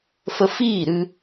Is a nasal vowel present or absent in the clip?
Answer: absent